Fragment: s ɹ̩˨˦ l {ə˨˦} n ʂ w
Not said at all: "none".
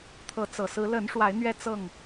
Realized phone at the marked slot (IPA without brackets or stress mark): ə˨˦